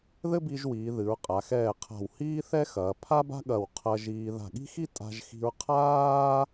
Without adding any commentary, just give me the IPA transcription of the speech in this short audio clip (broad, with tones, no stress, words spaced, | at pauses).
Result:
ðɘ˥bi˧ʒwiː˩˧ ðɨ˩˧ɹqʼa˩˧x ɛː˧˩qʰa̤˧˩w hiː˥θɛ˥xɐː˩˧ pʰa˥ba̤˥ɠɐ˧˩w qʰɐ˧ʒiː˧ ða̤˧˩ɠi̤˥xi˥ tʼa̤˥ʒxi̤˥ɹ qʰaː˥